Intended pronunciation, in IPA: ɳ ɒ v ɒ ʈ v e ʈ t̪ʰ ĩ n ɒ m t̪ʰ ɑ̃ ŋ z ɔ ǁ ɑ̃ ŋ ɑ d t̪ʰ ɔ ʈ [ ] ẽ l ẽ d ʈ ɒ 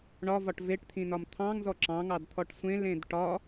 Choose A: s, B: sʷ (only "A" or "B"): B